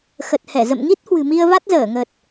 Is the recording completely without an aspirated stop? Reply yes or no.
yes